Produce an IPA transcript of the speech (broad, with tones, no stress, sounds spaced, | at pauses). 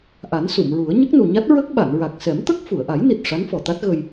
ʔ a˨˩˦ n s u˨˩˨ m ɹ u˨˩˦ ə̯ ɲ ə˦˥ k̚ n u˨˩ ɲ a˦˥ t̚ ɹ ə˦˥ k̚ ɓ a˨˩˨ n ɹ a˨˩ k̚ s ɛ˨˩˦ m t̪ ə˦˥ k̚ f u˨˩˨ ə̯ ʔ a˨˩˦ j n i˨˩ t̚ ʂ a˧˥ n f ɔ˨˩ t̪ a˦˥ t̚ ɣ ə˧ j